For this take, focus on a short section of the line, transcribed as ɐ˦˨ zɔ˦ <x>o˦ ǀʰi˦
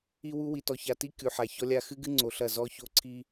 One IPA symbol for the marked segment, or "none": ç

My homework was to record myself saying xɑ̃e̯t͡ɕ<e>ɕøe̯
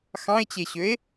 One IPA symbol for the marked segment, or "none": e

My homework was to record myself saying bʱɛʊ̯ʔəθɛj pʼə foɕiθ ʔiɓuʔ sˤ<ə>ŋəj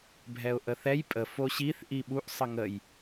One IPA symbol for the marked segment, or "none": ə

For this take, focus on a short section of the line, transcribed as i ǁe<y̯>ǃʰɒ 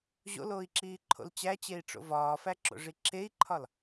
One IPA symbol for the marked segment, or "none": i̯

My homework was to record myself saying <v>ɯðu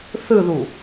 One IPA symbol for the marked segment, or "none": θ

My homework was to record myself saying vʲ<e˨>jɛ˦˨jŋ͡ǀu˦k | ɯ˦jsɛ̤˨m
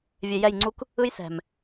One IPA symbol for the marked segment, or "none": e˨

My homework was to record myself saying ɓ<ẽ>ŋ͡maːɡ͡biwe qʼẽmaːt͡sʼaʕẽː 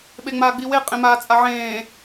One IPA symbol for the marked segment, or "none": e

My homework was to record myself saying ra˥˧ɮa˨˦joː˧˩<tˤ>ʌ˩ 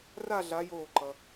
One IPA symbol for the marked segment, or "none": ǃ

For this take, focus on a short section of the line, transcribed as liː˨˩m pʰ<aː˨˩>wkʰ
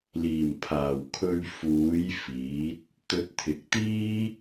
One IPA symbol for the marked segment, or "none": aː˨˩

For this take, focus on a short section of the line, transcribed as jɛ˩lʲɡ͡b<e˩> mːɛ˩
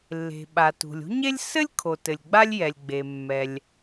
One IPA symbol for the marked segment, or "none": e˩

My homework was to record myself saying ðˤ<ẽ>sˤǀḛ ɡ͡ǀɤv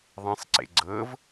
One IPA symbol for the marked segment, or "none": ẽ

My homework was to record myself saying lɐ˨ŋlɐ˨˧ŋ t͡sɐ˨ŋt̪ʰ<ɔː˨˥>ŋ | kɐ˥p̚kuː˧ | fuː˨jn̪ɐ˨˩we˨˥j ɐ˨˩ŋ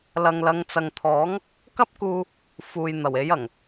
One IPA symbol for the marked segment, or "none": ɔː˨˥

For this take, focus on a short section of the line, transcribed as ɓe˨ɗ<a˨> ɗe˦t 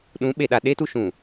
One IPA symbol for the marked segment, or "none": a˨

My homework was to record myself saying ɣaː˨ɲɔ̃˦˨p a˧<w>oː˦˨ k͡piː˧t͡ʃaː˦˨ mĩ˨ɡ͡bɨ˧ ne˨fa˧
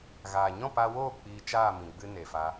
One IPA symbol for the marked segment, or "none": w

